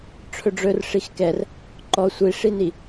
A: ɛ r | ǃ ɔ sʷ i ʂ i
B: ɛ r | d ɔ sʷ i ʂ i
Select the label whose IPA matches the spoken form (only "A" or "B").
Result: A